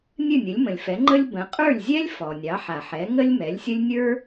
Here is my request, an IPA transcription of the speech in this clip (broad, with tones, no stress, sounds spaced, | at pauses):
nʲ ɨ˥˩ nʲ ə˩˥ lʲ m ə̃˩ lʲ f ɛ˩˥ ŋ͡ǃ ə˥ lʲ b ə̃˩˥ qʼ ə˞˥˩ lʲ zʲ ɛ˥ lʲ f ɔ˩ nʲ ɑ˩˥ ħ a˩ ħ ɛ˩˥ ŋ ə˥ lʲ m ɛ˩˥ lʲ sʲ ə˥ lʲ nʲ ə˞˥